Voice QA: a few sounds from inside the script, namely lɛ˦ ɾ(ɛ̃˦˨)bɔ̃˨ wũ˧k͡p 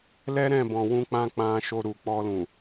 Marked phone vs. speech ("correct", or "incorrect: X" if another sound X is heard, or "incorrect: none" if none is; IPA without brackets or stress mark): correct